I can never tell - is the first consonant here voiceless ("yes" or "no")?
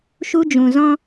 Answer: yes